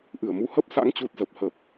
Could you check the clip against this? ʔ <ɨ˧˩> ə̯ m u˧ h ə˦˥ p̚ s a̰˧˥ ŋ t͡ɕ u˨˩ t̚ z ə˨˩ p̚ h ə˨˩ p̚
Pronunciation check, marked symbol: correct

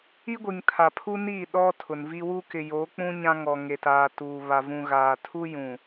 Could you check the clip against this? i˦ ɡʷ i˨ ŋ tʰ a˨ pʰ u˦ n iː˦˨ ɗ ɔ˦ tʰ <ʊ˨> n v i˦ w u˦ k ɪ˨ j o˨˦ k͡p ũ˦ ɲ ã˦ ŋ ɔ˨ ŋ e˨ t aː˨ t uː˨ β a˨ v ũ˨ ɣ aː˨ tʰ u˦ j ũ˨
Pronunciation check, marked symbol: correct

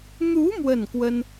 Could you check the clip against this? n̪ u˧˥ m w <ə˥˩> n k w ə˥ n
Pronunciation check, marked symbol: correct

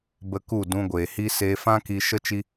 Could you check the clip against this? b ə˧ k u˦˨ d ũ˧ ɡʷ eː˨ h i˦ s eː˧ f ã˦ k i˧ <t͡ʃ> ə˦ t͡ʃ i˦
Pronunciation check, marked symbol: incorrect: ʃ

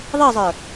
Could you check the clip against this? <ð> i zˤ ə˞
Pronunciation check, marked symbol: incorrect: ðˤ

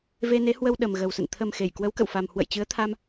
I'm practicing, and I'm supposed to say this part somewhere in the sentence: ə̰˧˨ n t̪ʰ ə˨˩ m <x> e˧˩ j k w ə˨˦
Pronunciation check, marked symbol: correct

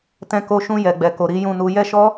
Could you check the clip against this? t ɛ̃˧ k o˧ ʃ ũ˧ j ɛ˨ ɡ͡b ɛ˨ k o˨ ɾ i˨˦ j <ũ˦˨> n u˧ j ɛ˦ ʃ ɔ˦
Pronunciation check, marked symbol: correct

